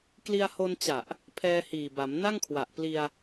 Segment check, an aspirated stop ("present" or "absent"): present